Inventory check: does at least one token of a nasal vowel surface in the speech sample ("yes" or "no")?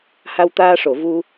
no